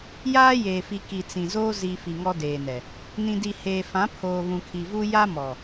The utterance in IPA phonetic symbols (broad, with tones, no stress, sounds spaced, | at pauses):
j aː˦ j eː˨ f i˨ k i˨ t͡s ĩ˨ z oː˦ z i˨ f i˨ ŋ ɔ˦ d eː˨ n ɛ˨ | n ĩ˨ d i˨ h eː˨ f ã˨˦ pʰ oː˨ β ũ˨ kʰ i˨ v u˦ j a˦ m ɔ˨